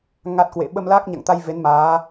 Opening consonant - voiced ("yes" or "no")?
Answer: yes